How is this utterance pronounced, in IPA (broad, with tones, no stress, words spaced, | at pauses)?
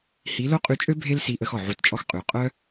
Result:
hi˨˦lo˦qʼy˧t͡ʃʼø˦ bʱe˦lsi˧ʔə˧x ɔ˨ʕu˧tt͡ʃʼɔ˦x qʼy˨qʼœ˦